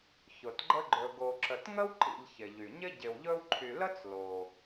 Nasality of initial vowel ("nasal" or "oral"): oral